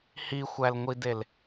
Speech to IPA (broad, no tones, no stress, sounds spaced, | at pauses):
h i xʷ æ l ŋʷ i d e l